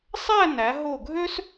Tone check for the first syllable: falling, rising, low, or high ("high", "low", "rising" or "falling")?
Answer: falling